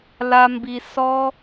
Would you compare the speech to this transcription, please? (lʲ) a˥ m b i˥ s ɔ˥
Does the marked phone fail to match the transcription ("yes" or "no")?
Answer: yes